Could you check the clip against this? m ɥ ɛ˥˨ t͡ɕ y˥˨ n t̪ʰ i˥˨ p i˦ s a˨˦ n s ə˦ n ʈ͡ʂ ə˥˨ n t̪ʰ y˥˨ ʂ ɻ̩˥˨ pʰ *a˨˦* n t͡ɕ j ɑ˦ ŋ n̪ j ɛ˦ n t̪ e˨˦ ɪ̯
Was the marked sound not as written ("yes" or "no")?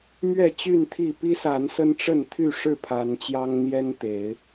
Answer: no